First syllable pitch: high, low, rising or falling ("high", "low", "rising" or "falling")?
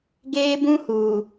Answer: high